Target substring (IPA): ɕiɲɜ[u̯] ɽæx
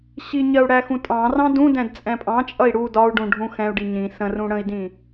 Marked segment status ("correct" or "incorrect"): correct